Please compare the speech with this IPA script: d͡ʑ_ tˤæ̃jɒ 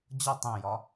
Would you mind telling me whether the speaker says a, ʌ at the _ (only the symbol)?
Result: ʌ